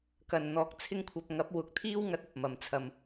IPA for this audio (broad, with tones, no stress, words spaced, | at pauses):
kɐ˨n n̪ɔː˧k̚t͡sʰɪ˥ŋkʷʰɐ˧p̚ ŋɐ˨˥p̚wʊ˨˥k̚t̪ʰiː˥wŋɐ˨˥t̚ ɐ˨p̚mɐ˨mt͡sʰɐ˧m